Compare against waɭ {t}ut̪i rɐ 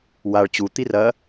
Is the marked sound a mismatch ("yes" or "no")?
yes